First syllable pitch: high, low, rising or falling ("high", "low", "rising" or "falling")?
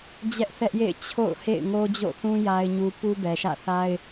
high